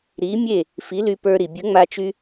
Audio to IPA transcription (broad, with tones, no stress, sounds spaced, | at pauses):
ɾ i˨˥ mʲ e˥˩ | f i˨˥ l y˧ p ə˞˧ ɾ i˩ bʲ ə˨˥ ŋ͡m a˧ t͡ʃ y˧